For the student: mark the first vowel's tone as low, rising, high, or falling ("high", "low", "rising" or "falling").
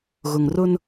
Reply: low